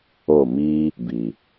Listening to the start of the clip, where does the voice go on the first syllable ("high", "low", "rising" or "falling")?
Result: falling